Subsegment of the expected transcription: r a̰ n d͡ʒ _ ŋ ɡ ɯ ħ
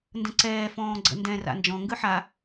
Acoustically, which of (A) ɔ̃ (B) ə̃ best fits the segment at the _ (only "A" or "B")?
A